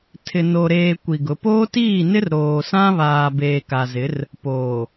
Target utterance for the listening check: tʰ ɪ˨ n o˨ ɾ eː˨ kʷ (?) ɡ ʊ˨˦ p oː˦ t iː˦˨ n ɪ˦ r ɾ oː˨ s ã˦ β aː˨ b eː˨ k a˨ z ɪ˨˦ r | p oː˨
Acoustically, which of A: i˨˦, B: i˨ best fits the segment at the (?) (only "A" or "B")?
B